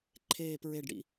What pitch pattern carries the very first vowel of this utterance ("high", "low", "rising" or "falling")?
low